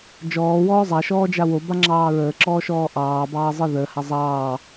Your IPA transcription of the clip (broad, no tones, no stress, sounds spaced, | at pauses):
d͡ʒ ɔː w ɔː zˤ a ʃ ɔː d͡ʒ a w o b a ŋ͡ǁ ɑː ɹ əː ǁ ɔː ʃ ɔː ʔ ɑː b ɑː zˤ ɨ ð əː h a zˤ ɑː